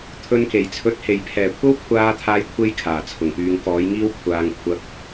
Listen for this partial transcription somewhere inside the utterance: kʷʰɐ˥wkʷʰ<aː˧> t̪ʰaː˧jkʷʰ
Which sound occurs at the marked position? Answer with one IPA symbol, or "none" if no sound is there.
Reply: aː˧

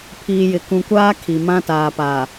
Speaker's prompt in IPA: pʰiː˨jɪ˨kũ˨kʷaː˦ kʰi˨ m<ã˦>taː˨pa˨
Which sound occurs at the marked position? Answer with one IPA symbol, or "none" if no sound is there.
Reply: ã˦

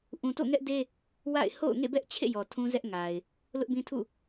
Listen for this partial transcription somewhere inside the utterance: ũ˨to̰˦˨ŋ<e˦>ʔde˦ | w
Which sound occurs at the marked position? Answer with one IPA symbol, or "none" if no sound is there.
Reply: ɛ˦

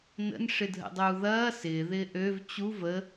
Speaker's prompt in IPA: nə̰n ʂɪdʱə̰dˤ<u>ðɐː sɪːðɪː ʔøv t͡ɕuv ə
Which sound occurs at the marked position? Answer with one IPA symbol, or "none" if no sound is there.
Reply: uː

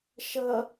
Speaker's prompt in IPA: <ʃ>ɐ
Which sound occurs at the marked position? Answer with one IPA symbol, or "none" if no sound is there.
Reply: ʃ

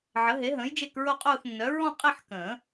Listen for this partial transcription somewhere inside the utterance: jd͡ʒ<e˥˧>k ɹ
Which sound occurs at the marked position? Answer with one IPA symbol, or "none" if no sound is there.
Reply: e˥˧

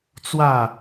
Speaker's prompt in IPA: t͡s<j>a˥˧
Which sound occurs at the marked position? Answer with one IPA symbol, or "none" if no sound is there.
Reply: w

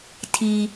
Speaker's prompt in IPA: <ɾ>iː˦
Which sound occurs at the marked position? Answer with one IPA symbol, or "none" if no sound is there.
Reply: tʰ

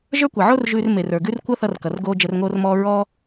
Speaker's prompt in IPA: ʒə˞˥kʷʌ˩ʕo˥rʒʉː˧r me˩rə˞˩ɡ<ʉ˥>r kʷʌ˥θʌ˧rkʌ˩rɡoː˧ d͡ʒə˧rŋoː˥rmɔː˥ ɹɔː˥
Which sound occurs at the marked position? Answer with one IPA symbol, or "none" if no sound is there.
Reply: ʉ˥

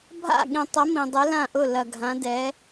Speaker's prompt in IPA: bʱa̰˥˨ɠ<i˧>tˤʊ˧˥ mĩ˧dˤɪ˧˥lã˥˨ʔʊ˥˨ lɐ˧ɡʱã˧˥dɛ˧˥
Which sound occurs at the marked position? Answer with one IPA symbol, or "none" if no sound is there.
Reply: ĩ˧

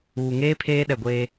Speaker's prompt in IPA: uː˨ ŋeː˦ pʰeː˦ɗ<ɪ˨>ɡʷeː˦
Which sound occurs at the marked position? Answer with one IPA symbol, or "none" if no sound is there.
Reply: ɛ˨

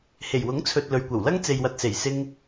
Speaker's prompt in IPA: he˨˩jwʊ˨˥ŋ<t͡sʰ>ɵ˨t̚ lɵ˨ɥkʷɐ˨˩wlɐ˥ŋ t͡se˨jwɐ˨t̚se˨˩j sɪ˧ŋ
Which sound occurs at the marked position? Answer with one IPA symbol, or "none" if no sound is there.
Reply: t͡sʰ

